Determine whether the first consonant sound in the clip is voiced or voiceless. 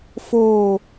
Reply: voiceless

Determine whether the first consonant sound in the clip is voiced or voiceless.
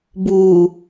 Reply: voiced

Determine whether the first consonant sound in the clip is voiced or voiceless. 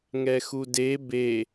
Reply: voiced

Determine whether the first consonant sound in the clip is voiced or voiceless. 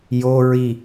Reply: voiced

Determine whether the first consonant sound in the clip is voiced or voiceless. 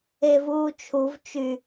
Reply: voiced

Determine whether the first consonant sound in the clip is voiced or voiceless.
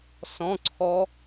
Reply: voiceless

